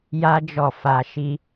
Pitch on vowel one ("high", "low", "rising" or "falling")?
high